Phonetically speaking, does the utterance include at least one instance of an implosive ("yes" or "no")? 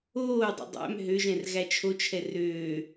no